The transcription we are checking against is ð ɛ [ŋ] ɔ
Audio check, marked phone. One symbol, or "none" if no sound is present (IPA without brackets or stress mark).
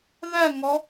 ŋ